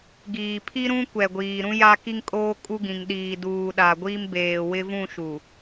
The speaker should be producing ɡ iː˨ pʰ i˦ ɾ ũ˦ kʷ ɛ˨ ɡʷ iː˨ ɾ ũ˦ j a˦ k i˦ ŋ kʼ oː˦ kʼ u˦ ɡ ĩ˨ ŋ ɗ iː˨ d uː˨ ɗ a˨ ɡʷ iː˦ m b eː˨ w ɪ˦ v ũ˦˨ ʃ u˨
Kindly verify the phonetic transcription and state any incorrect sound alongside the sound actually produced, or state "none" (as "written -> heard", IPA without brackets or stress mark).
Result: none